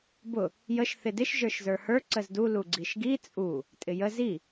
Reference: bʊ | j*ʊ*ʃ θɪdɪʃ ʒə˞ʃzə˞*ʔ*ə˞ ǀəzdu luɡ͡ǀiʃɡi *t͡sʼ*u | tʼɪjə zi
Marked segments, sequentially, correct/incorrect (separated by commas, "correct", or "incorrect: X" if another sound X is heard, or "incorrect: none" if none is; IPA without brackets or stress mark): incorrect: ə, incorrect: h, correct